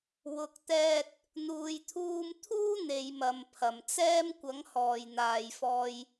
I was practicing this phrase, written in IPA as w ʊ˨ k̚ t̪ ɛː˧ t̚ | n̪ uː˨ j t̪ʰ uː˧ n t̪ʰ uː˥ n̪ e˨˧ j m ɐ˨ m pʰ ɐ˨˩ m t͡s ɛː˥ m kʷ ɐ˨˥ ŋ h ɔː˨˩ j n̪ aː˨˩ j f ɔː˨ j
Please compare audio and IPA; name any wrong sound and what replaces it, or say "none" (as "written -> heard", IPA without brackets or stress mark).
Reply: n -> m